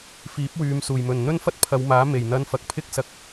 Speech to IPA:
f iː˨˥ p̚ w yː˨˧ m s uː˨˩ j m ɵ˨˩ n n̪ ɵ˥ n f ɐ˥ t̚ pʰ ɐ˨˧ w m aː˨˥ m e˨˩ j n̪ ɐ˧ n f ɐ˨ k̚ pʰ ɪ˥ k̚ s ɐ˧ k̚

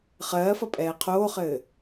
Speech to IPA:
χ ɜː f ʌ pʼ ɛː qʰ oː χ ɘː

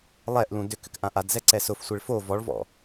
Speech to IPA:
lˠ ɛ ʔ l ũ d ʏ k ʏ k ʔ ã ʔ a d z ɛ ǀ ɛ s ʊ f sʷ e ɭ f o v ɔ ɭ v ɔ̰

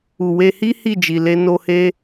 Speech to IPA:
u˨ w e˧ h i˦ h i˦˨ d͡ʒ i˨ l e˧ n o˧ h e˧

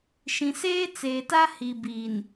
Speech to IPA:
ʃ ĩ˨ s eː˦ t͡s eː˨ t a˦ h i˨ b iː˨ n

